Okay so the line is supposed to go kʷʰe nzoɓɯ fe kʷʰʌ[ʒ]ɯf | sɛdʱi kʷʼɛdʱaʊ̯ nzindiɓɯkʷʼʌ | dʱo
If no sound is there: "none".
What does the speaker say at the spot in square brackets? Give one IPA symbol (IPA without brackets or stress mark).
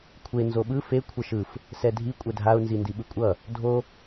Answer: ʃ